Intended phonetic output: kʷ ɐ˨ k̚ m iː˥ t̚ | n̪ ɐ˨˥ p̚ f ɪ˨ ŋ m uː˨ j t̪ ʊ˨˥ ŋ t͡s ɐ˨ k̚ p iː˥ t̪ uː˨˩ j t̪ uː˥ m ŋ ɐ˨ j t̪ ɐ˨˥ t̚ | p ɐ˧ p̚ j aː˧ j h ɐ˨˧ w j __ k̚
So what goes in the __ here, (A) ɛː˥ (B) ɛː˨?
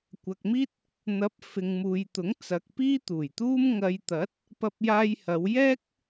A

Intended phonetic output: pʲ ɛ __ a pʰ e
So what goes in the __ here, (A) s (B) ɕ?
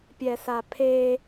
A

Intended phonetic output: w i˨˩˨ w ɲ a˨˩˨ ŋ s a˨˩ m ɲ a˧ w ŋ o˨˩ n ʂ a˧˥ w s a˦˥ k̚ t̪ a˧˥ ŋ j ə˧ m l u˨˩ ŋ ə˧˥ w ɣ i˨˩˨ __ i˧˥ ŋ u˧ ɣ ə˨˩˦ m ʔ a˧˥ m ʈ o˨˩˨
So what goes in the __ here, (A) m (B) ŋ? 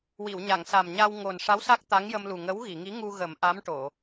B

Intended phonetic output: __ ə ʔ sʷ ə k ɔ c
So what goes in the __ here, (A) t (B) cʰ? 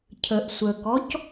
B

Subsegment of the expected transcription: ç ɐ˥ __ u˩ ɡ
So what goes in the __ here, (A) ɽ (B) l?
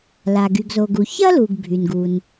B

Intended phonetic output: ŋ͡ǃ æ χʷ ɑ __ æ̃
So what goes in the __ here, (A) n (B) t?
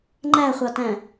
B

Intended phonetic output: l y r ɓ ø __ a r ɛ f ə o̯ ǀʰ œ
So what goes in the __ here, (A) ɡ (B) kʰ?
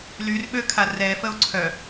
B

